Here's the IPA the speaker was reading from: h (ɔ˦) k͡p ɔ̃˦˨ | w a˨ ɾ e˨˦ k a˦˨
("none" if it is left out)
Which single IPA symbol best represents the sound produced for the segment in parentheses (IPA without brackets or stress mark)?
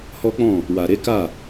ɔ˦